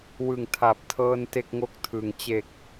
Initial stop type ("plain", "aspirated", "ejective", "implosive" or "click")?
aspirated